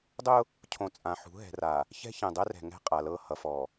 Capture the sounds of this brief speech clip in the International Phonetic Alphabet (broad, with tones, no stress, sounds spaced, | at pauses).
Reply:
dˤ ʊ˦ | cʰ õ˨˦ t͡sʼ ã˨ ħ ṳ˨˦ ɦ ɛ̤˨ r a˨ | ç ɛ̤˦ ç ɛ̃˨ dˤ ɛ˦ r ɛ̤˨ ŋ ɛ̤˦˨ qʼ a˨ l ɤ˦˨ h ʌ˨ f ɔ˨